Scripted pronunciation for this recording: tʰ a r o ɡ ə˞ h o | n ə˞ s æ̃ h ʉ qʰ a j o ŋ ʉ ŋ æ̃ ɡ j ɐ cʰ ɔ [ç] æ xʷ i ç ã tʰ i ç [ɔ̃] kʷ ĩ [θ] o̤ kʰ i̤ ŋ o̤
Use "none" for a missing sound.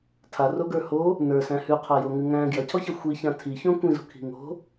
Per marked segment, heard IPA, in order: ç, õ, z

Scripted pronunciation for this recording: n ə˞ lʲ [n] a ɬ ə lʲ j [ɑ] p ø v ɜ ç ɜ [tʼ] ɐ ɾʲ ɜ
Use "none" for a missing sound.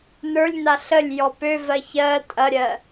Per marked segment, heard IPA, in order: n, ɔ, tʼ

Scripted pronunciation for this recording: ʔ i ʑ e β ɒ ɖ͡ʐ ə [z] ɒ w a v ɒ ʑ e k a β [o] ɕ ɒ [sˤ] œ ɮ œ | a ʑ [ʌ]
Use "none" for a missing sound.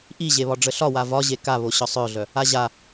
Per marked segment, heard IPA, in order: ɬ, o, sˤ, a

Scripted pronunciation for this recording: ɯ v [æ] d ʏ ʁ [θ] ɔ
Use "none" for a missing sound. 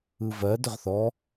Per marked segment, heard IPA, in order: ɜ, θ

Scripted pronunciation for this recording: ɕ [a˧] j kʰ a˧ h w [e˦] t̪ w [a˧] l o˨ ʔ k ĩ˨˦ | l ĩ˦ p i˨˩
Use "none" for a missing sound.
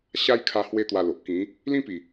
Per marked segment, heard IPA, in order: a˦, e˦, a˧

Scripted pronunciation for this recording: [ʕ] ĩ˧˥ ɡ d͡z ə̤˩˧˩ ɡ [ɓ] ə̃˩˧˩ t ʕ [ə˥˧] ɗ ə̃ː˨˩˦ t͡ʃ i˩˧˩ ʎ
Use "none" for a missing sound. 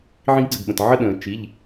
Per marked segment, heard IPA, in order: ʕ, ɓ, ə˥˧

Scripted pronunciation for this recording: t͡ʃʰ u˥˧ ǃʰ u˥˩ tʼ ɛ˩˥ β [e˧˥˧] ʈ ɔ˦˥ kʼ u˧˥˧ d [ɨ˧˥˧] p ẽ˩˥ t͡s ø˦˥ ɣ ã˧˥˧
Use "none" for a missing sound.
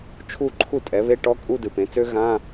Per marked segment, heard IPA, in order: e˧˥˧, ɨ˨

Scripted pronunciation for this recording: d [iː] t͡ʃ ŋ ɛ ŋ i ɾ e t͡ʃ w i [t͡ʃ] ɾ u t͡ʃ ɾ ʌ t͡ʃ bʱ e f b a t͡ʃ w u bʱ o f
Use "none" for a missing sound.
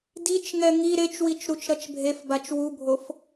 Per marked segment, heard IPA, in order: i, t͡ʃ

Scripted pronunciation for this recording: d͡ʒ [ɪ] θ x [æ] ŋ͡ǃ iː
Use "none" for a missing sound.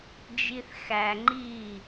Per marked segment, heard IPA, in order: i, æ

